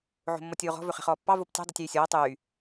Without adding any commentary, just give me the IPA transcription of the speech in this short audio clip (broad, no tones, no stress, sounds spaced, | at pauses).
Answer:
ʕ o̤ mː ɔ tʲ oː ʁ ɔ̤ v ɵ χ ɛ̤ χ ɔː pː ɑ v o p tʲ ɛ̤ dˤ ɛ tʲ yː sʲ ɔː tˤ yː